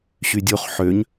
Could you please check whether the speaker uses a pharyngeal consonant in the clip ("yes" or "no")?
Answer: yes